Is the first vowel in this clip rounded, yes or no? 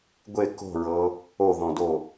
no